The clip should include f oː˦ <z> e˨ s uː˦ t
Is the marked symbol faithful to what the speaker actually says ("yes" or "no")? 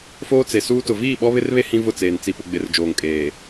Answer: no